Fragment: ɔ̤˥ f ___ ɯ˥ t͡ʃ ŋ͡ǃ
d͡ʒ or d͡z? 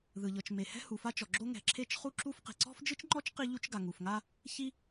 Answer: d͡ʒ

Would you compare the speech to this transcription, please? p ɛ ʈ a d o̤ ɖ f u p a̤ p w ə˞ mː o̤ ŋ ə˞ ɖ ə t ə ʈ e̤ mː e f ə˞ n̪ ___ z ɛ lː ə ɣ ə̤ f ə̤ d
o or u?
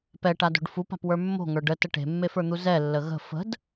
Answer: u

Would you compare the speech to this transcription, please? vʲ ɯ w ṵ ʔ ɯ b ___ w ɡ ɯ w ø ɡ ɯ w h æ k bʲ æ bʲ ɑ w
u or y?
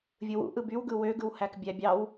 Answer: y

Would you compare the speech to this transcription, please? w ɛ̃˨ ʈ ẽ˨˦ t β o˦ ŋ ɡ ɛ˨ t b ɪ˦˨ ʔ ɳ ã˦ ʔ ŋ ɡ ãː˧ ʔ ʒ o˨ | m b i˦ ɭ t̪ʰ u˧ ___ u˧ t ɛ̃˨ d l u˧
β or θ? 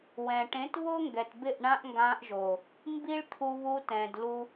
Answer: β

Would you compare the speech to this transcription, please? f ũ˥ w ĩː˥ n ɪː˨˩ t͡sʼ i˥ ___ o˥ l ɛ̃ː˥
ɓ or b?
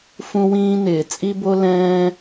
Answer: b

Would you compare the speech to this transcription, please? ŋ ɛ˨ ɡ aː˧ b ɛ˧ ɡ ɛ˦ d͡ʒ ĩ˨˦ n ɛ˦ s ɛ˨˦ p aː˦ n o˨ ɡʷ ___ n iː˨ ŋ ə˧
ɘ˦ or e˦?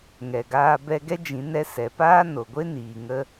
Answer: e˦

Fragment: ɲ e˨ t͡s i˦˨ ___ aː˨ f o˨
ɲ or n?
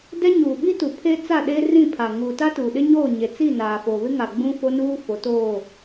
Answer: n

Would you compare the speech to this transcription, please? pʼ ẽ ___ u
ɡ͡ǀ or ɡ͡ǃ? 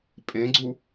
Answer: ɡ͡ǀ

